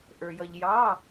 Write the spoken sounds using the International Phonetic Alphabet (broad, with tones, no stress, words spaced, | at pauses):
ʔə˞˧jʌ˧ʎ jɑ˧˥˧